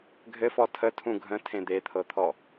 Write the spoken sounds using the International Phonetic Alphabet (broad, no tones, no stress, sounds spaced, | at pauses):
ɡʱ ɘ f ɔ tʰ ə tʰ ũ ɡʱ ə̃ tʰ ẽ d̪ e t̪ʰ ɤ t̪ʰ ɔ